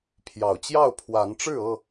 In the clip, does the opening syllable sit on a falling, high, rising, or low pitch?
low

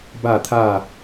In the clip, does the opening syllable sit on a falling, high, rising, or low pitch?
falling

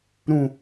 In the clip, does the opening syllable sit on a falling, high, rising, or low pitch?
low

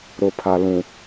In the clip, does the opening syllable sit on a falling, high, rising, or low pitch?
low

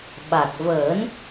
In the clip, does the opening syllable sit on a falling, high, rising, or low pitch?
low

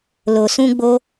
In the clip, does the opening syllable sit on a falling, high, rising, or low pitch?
low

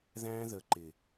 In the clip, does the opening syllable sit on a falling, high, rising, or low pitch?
high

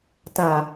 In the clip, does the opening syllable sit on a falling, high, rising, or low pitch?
low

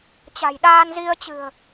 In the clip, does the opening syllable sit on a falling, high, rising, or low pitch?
low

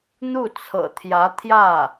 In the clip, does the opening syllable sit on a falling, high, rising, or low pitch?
falling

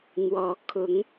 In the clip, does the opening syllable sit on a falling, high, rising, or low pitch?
rising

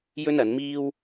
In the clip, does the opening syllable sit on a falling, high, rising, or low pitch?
high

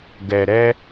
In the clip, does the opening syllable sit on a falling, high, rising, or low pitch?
low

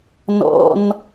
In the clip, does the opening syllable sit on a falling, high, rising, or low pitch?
high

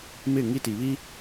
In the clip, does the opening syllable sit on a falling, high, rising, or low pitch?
falling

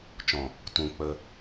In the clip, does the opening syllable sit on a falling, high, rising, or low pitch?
low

